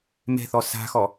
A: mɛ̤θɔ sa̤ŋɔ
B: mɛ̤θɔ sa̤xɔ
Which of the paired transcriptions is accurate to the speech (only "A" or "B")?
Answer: B